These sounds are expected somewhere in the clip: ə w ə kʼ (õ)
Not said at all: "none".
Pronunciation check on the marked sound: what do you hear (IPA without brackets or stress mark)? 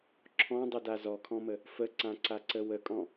ɔ̃